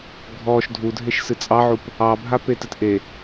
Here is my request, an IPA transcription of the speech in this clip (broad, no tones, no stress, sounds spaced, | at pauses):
ɡʱ ɔ ʃ dʱ u dʱ e ʃ s ɨ t͡sʼ ɑ ʕ u p | ɑ bʱ a p e t ɨ t ʔ e